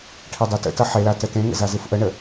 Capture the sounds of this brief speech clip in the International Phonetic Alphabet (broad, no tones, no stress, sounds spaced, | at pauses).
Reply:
ʈʰ e dˤ e t ə̰ t ʌ ħ e l a t ə t ẽ ŋ ə̰ z a z ɨ f ʔ ə ɳ ə